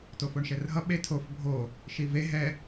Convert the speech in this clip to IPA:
t o f o ɳ ʃ ɛ r ɦ ʌ ɓ e tʰ o f bʱ o | ʃ i v e ɦ ɛ

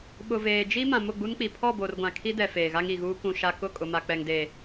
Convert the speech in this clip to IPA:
ɓ ʊ˨ v eː˨ d͡ʒ i˦ m ã˨ m ʊ˦˨ ɡ͡b u˦ n k͡p i˨ pʰ ɔ˦˨ b o˨ r ɡʷ ã˨ kʰ i˦ d ɛ˨ f eː˨ ɣ a˦ ŋ i˨ ɣ uː˦ k ũ˨ ʃ a˨ k ʊ˦˨ kʼ ʊ˨ m a˨ k͡p ɛ˨ ŋ d e˨

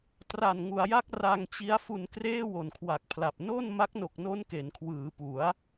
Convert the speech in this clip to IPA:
t r a˨˩ n ŋ u˩˦ a̯ j a˦˥ k̚ r a˧ ŋ t͡ɕ i˦˥ a̯ f u˧ n k r eː˥˩ w o˨˩ n kʰ w a˨˩ k̚ pʰ l a˨˩ p̚ n o˥˩ n m a˦˥ k̚ n o˨˩ k̚ n o˦˥ n k e˩˦ n kʰ w ɯː˩˦ p u˩˦ a̯

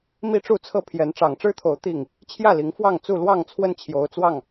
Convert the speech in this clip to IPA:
m i˦ ʈ͡ʂ u˥˨ t͡sʰ ɤ˥˨ pʰ j ɛ˨˦ n ʈ͡ʂ ɑ˨˩ ŋ ʈ͡ʂ ɻ̩˦ t̪ʰ o˨˦ ʊ̯ t̪ i˥˨ ŋ | t͡ɕʰ j ä˥˨ l i˨˦ ŋ f w ɑ˥˨ ŋ t͡s u˥˨ l w ɑ˥˨ ŋ t͡sʰ w ə˦ n t͡ɕʰ j o˨˦ ʊ̯ t͡s w ɑ˥˨ ŋ

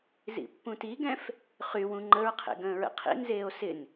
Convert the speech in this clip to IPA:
z ḭ pː ũ t i ɡ ɛ̃ f | χ y w ũ ŋ͡ǃ ə ɹ qʰ ḛ ɡ ə̃ː ɹ ə̰ qʰ ḭ n z eː o̯ s ɪ n

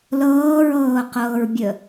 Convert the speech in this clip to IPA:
l ɤː ɹ ɤː q ɤː ɹ bʲ ə

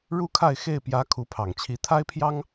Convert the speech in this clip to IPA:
ɻ u˥ kʰ a˥˧ ɪ̯ x e˥˩ ɪ̯ p j ä˧˥ kʰ u˧˥ pʰ ɑ˨˩ ŋ t͡ɕʰ i˧˥ t̪ʰ a˥ ɪ̯ pʰ j ɑ˥ ŋ

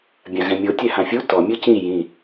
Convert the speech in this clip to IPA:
bʲ ã ɣ ɛ̃ mʲ o tʲ ɛ h ã fʲ u t ɔ mʲ ɯ c ĩ j ĩ

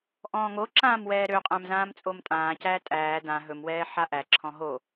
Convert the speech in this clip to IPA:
ʔ ɔ̃ː ŋ o ǁ ãː m w ɛː ɾ ø qʼ æ̃ m z ãː m t͡sʼ o m tʼ ãː c æː tʼ æː d ã ɦ ɵ m w ɛː ħ a ʔ æ ǁʰ ɔ̃ ɦ o

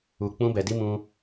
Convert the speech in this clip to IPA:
u˧ k͡p ũ˦ b ɛ˧ d i˦ m ũ˧

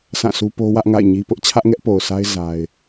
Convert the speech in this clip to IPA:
s ã˦˨ s u˦ p o˦ w ä˦ ʔ ŋ a̰˦˨ ɪ̯ ɲ i˦ p ʊ˦ ʔ t͡ɕʰ ä˦ ʔ ŋ ɛ˦ ʔ p o˨ ʊ̯ s a˦ ɪ̯ z a˦ ɪ̯

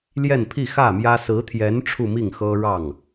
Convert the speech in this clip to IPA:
l j ɛ˥˧ n pʰ i˥˧ x ä˥˩ m j ä˥ s ɹ̩˧˥ t̪ʰ j ɛ˧˥ n ʈ͡ʂʰ u˥˧ m i˥˩ ŋ x ɤ˥ ɻ ɑ˥˩ ŋ

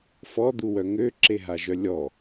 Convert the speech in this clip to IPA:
f ɔ d̪ u w œ ŋ ø ǁ e ɦ a ʒ œ lʲ ɔ

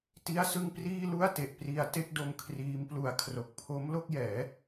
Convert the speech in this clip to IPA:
t i˥˩ a̯ s ɯ˥˩ ŋ p r iː˥˩ l u˥˩ a̯ t e˨˩ ʔ p r i˧ a̯ t e˥˩ k̚ d o˧ m kʰ r iː˦˥ m p l u˧ a̯ kʰ r o˨˩ k̚ pʰ o˦˥ m l o˥˩ k̚ j ɛː˩˦

